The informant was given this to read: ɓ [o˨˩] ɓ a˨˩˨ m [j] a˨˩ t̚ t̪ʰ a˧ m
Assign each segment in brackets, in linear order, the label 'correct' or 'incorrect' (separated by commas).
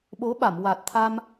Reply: incorrect, incorrect